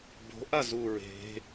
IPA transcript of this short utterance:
b o̤ ʔ a z u ɹ e̤

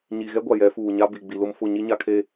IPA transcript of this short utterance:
ɲ i˨ ɣ ɛ˦ ɡʷ a˨ j ɛ˨˦ f uː˨ ɲ a˦ b i˨ ɡ͡b i˨ l ʊ˦ m f ʊ˦˨ ɲ i˦ ɲ a˦ kʰ e˦

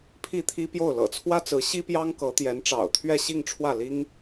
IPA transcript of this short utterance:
pʰ i˥˩ t̪ʰ i˥ p j o˥˩ ʊ̯ l ɤ̰˨˩ t͡sʰ w ä˥ t͡s ɹ̩˧˥ ɕ i˥ p j ɑ˥ ŋ k ɤ˧˥ t̪ j ɛ˧˥ n ʈ͡ʂ ɑ̰˨˩ ʊ̯ t̪ʰ ɥ ɛ˥˧ ɕ i˥˧ ŋ ʈ͡ʂʰ w ä˥˩ l i˥ ŋ

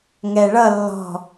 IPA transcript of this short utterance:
ŋ ɛ ɭ ʌ lː ɔ̤

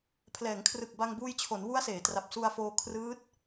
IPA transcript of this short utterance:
pʰ l ɛː˩˦ ŋ kʰ r ɯ˨˩ k̚ b a˧ ŋ b uː˧ j t͡ɕʰ o˩˦ n w u˦˥ a̯ s eː˩˦ t r a˨˩ p̚ s u˧ a̯ f oː˧ kʰ r ɯː˦˥ t̚

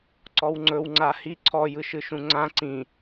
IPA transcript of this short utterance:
ǀ ɔ w ŋ͡ǀ ɵ w ŋ͡ǀ a h i ǀʰ ɔ j ɯ ʃ ɯ ʃ ũ ŋ͡ǀ ã ǀ ĩ

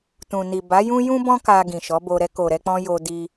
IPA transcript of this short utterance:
t ũ˨ n i˨ b a˨˦ j ũ˦ j ũ˦ b ɔ̃˦ k a˧ ɡ ĩ˨ ʃ ɔ˨˦ b o˧ ɾ ɛ˧ k o˨ ɾ ɛ˧ k͡p ɔ̃˧ j o˧ d i˧

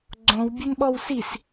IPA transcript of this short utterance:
ɡ͡ǀ õ w bʲ ɘ n ɓ ɔ w s i s

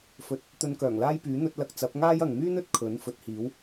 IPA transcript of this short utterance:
f ɵ˨ t̚ | t̪ ɵ˧ n k œː˨˩ ŋ l aː˥ j p yː˨˥ n̪ ɵ˧ t̚ l ɐ˧ k̚ t͡s ɐ˨˥ p̚ ŋ aː˥ j ɐ˨ ŋ m yː˥ n ɵ˥ t̚ kʰ ɵ˨˥ n f ɵ˨˥ t̚ h iː˨˥ w

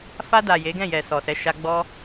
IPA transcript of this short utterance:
f a˧ d a˨ j e˨˦ ɡ ɛ̃˦˨ j ɛ˨ s ɔ˨ s ɛ˨˦ ʃ a˧ ɡ͡b ɔ˧

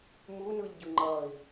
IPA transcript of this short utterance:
m u n ɯ ʎ ɟ ɯ ŋ͡ǃ ʌ i̯

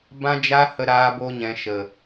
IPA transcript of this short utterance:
b ã˦ d͡ʒ a˦ h ə˧ ɾ aː˦ b o˦ ɲ ɛ̃˧ ʃ ə˨

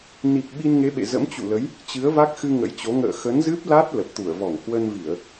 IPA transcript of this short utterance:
n i˨˩ k̚ ɓ i˧ n ŋ e˨˦ ɓ ḛ˧˨ z ə̰˧˥ m t͡ɕ ṵ˧˨ l ə˨˦ j | t͡ɕ ɨ˨˦ ə̯ v a˦˥ k̚ x ɨ˧ ŋ ə̰˧˥ j t͡ɕ o˨˦ ŋ ə̰ː˧˨ x ə˨˦ n z ɨ˦˥ p̚ l a˦˥ t̚ l ə˨˩ p̚ t̪ u˧˩ ə̯ v ɔ˧˩ ŋ h w ə˧ n v i˧˩˨ ə̯

